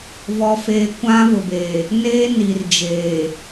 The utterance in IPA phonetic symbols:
vɔ˨feː˨ kʷã˦vʊ˨beː˨ | neː˦ni˨rd͡ʒeː˨

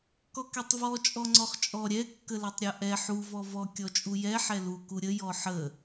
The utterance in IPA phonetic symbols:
kɔkɛtˤvɔ t͡ʃʼɔŋ͡ǀɔχt͡ʃʼɔ ɾʲɛ kːəlɛtˤɾʲɔʔɛ ħu vɔvɔ kʲɔt͡ʃʼujɛ ħɛlu kuɾʲə jɔħə

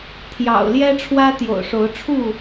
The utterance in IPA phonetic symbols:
t̪ʰjɑ̰˨˩ʊ̯ ljɛ˦ʈ͡ʂʰwä˦ t̪jo̰˨˩ʊ̯ʂo˨˦ʊ̯ʈ͡ʂʰu˥˨

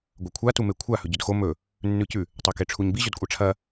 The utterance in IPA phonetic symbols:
ɡʷɐkʷʰa tumekʷʰa hɵɟɵdxo mɵ | nːʉcʉ | tˤakeʈ͡ʂʰuɲbi ʑɵdkʷʼaʈ͡ʂʰɐ

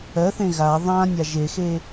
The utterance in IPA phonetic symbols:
ɜθẽ ɣa ðˤãnʲa ʒexe

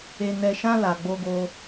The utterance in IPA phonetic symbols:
e˧nɛ˧ʃã˦ la˧ɡ͡bo˦ɡo˦

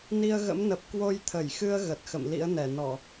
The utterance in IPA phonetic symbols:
ni˧ə̯ɣə̰˧˥m nə˨˩p̚ kwo˧jt̪ʰə˧˩jxɨ˧ə̯ ɣə˨˩t̚xə̰˧˨m lḭ˧˥ə̯nɛ˧˩nɔ˧˩˨

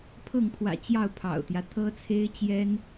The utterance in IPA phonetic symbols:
pʰɤ˥˩ŋpʰwä̰˨˩t͡ɕjɑ˥˩ʊ̯ pʰɑ̰˨˩ʊ̯t̪jä˦ t̪ʰɤ˥t͡sʰe˥ɪ̯ t͡ɕjɛ˥n

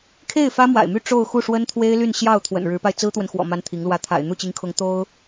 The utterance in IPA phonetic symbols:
kʰe˥˩ɪ̯ fä˥mwa̰˨˩ɪ̯my˥˧ ʈ͡ʂo˥˧ʊ̯xu˥˩ ʂwə˥nt̪ʰwe˥ɪ̯ly˥˧nɕjɑ˥˩ʊ̯ t̪ʰwə̰˨˩n ɻɻ̩˧˥pa˧ɪ̯ t͡sɹ̩˥t̪wə˨n xwɔ̰˨˩ ma˥nt̪ʰi˧˥ŋlwä˥˩ t̪ʰa̰˨˩ɪ̯n̪u˥˩t͡ɕi˧˥ŋkʰʊ˧˥ŋ t̪o˥ʊ̯

